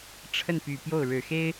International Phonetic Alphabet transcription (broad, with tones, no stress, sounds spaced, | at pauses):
ʈ͡ʂʰ ə˥˩ n p y˨˩ p j o˥˩ ʊ̯ ɻ ɻ̩˨˩ x e˥ ɪ̯